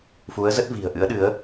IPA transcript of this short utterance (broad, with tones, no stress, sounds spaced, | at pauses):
f u˨˦ ə̯ z ə˦˥ t̚ v i̤˨˩ ə̯ ʔ ɨ̰˧˥ ə̯ ɗ ɨ˨˦ ə̯